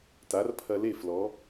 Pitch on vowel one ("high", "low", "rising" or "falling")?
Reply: rising